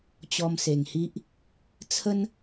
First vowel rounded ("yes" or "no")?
yes